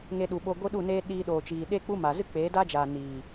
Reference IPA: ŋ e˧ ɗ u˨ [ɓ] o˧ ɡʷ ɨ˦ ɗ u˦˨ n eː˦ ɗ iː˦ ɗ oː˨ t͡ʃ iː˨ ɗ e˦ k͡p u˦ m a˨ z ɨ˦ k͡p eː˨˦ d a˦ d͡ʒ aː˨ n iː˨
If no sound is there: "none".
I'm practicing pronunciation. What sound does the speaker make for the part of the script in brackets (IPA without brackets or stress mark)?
ɓ